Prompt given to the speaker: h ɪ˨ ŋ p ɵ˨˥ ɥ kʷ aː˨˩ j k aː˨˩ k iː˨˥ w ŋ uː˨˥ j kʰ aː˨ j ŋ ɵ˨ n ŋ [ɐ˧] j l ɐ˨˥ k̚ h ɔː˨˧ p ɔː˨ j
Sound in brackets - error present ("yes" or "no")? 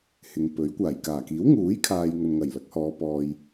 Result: yes